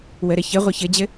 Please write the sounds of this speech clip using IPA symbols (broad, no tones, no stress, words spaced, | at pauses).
wəɾɘ çɘ ʁʷɯçɘd͡ʑɘ